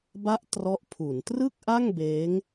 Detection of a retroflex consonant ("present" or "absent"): absent